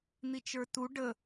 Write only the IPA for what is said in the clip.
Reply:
n̪ i t͡ʃ ə˞ t u ɖ ə

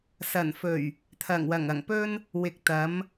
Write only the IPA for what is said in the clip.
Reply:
s ɐ˨˩ n f ɵ˨˩ ɥ | t̪ʰ ɐ˨˩ ŋ w ɐ˨˩ ŋ ɐ˨˩ ŋ p ɵ˥ n | w ɪ˨ k̚ t̪ ɐ˨˥ m

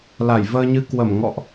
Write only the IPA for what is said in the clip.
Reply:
l a˧˩ j v əː˧ ɲ ɨ˧ k w ə˧˩ m ŋ ɔ̰˧˨ ʔ

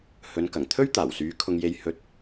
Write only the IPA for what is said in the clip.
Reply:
h ɵ˨˧ n k ɐ˨˩ ŋ t̪ʰ ɵ˥ ɥ t̪ aː˨˩ w s yː˨˧ kʰ ʊ˧ ŋ j e˧ j h ɵ˨˥ t̚

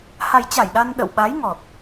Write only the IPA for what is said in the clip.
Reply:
h a˨˩ j t͡ɕ a˧˩ j ɗ a˧ n ɗ ə̰˧˨ w ɓ a˨˦ j ŋ ɔ˨˩ t̚

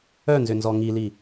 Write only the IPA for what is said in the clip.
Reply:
œ n z ʏ n z ɔ ŋ i l i

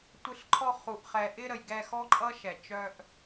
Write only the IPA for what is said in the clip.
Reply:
tʷ ɪ˦ ɬ ǃʰ ɔ˦ χ u˨ ʔ χ ɛ˨ ʔ ɪ˦ ɾ ə˨ j ɡ ɛ˦˨ x ɔ˦ ǃʼ ʌ˦ ʃ ɛ˨ t͡ʃ œ˦ ʔ

